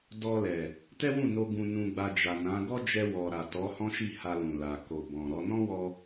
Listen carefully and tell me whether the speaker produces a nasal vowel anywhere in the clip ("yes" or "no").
yes